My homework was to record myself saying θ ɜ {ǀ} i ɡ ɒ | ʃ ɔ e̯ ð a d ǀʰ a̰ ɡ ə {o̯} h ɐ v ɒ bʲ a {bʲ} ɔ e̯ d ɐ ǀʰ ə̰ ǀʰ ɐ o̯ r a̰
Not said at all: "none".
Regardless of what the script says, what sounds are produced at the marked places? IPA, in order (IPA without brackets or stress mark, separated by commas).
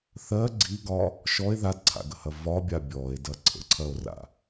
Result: ɡ͡ǀ, none, bʲ